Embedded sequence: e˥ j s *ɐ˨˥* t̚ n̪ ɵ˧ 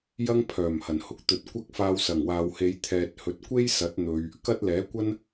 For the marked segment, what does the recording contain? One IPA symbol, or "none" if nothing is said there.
ɐ˨˥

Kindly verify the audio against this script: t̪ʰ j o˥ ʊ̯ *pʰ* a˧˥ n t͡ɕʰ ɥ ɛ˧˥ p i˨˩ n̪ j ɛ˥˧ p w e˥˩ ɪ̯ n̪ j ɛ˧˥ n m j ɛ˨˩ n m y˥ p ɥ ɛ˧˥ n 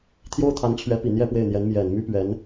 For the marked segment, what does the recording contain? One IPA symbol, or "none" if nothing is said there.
t̪ʰ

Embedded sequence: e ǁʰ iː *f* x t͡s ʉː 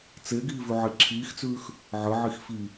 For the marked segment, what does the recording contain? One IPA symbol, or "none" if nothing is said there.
none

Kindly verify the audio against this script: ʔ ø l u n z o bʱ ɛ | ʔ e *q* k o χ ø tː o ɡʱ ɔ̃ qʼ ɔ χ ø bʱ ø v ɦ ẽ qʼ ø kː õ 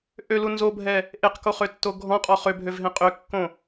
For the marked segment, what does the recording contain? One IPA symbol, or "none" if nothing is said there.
q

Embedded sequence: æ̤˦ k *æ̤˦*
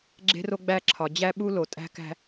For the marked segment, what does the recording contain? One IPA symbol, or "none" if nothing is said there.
æ̤˦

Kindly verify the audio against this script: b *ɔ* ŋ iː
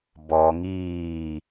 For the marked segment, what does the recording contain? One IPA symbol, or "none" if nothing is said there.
ɔ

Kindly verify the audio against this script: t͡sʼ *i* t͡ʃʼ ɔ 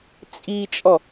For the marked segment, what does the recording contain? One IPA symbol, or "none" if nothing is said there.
i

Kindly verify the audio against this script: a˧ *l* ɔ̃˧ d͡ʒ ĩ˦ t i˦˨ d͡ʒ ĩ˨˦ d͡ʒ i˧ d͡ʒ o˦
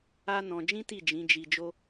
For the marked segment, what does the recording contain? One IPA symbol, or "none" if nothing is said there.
n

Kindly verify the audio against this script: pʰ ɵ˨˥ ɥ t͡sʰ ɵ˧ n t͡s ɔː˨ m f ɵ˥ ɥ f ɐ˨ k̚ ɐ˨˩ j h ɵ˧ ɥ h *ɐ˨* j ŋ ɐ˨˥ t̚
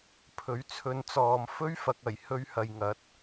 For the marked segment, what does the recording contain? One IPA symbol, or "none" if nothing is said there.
ɐ˨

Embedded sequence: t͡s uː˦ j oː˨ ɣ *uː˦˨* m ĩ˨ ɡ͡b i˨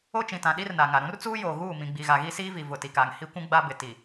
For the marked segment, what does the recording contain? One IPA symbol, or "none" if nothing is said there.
uː˦˨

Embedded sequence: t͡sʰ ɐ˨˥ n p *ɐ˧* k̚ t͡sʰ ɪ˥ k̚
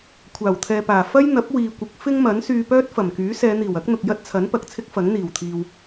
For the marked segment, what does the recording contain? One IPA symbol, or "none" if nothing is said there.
ɐ˨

